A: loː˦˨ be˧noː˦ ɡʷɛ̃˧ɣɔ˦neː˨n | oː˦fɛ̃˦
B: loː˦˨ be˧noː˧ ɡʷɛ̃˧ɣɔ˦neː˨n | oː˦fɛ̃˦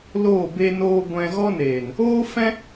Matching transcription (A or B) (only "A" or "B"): B